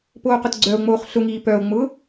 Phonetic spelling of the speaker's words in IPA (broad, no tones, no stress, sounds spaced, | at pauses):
p oː q ʊ t ɡ͡ǀ œ o̯ ŋ͡m oː χ ɬ ʊ ŋ iː p œ o̯ ŋ͡m ʊː